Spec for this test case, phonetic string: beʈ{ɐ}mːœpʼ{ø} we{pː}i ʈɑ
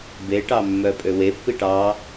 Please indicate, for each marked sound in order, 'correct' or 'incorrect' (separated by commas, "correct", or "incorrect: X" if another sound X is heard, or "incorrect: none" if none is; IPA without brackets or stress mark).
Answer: incorrect: ɑ, correct, correct